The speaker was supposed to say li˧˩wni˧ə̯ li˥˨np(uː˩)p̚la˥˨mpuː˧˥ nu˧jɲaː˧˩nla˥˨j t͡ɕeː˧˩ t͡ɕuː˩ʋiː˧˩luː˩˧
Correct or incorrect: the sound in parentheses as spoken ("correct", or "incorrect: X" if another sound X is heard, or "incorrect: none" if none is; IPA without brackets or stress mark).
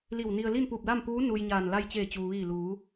incorrect: uː˧˩